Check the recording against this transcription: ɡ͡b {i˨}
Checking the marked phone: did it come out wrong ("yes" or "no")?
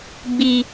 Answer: no